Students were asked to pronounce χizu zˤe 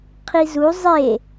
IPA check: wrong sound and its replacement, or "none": χ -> qʰ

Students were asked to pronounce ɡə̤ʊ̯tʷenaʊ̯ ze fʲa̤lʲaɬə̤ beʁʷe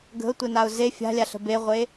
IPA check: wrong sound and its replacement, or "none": none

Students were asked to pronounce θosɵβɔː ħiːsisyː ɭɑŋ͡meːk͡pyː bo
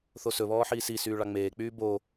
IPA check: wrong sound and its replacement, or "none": none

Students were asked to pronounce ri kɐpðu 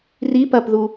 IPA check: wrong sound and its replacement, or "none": k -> p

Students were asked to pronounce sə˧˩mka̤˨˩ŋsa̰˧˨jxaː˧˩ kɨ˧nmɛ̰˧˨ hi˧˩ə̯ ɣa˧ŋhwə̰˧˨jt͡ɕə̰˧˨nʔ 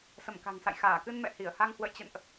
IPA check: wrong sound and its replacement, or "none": ɣ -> h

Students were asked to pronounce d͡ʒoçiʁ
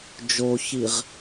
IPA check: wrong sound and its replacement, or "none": none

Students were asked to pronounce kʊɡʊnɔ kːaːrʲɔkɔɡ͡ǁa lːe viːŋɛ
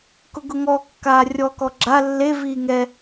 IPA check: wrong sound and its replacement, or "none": n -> ŋ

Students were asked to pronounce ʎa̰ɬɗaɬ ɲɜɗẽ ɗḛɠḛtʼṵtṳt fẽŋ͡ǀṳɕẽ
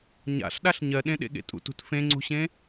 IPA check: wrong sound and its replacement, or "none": ʎ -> ɲ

